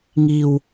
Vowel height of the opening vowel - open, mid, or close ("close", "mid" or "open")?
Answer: close